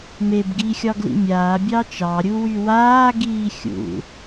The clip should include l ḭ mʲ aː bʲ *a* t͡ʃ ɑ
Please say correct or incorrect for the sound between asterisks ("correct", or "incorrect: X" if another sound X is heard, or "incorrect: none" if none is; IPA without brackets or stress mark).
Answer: incorrect: ɑ